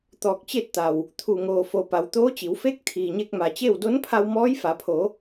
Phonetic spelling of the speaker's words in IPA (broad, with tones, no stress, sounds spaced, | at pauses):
t̪ ɔː˧˩ k̚ t͡ɕ e˥˨ t̚ t̪ a˩ w | t̪ʰ u˩ ŋ oː˩ f o˩ p a˩˧ w t̪ oː˧˥ t͡ɕ i˩˧ w f e˧˥ k̚ t̪ʰ iː˩ ɲ e˧ k̚ m a˩ t͡ɕ e˥˨ w d o˧˥ n pʰ a˧ w m ɔː˧˥ j f a˩˧ pʰ o˩˧